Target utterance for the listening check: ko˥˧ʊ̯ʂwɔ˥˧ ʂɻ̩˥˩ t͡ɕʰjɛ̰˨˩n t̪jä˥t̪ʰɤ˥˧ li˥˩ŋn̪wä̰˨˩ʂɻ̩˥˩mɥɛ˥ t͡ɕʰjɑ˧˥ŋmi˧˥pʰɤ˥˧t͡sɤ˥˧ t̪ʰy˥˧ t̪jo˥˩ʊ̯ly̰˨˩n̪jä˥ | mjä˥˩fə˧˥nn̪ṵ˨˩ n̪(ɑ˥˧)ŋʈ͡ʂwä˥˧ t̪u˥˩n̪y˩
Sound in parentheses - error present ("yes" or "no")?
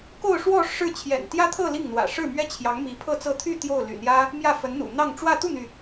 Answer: no